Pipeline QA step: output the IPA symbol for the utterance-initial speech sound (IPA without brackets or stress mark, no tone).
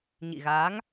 ɲ